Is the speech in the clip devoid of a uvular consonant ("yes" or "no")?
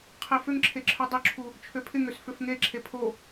no